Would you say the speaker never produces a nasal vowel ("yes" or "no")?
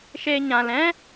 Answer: no